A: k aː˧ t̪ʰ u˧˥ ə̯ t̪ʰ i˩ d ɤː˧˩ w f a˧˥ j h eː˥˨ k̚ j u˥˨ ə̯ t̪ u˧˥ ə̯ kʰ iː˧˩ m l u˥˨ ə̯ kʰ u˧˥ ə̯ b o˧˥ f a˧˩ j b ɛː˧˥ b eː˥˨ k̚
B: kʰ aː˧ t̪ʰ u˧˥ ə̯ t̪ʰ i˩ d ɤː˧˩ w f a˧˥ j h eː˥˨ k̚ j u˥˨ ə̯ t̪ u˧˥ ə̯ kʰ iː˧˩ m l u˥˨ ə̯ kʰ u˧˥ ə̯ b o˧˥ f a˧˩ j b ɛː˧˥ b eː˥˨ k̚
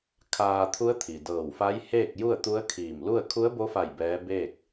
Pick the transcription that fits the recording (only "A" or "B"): B